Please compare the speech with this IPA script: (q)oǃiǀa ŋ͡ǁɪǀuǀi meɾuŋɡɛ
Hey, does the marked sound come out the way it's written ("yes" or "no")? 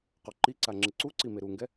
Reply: yes